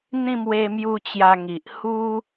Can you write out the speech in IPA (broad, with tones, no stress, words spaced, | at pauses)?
n̪ĩ˥˧mwe˧mju˧ t͡ɕja˧ ŋi˨ʔ hu˦